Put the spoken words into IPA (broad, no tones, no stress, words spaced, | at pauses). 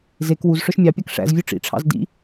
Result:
zek wuz ʂœʃmʲɑpʲɑk ʂæ̰zvʲʉ ʈ͡ʂḭʈ͡ʂʰɑ̰z dḭ